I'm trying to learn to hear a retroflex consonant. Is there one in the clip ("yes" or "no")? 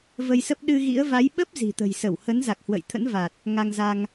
no